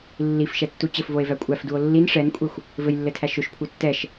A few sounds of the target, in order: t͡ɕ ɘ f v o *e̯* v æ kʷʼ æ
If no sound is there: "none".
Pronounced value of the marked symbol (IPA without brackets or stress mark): e̯